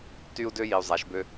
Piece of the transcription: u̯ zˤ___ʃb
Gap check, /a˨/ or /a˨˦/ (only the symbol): a˨˦